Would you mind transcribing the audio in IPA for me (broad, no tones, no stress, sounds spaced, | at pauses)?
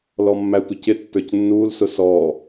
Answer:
l ɔ mː æ tʷ ɪ c ɪ tː ə˞ c nː uː l s ʊ s ɔ